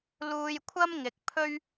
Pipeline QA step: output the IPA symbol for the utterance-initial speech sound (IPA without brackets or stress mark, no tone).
l